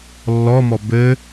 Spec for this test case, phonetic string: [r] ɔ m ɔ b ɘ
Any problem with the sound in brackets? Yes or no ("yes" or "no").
yes